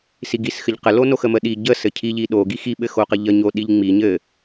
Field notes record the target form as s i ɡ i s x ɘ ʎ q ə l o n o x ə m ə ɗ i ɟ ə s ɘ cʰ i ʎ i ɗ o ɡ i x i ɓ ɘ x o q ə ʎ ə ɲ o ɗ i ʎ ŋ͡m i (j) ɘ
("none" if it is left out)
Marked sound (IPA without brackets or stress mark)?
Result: ɲ